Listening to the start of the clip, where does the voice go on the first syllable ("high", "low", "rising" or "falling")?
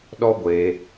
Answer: high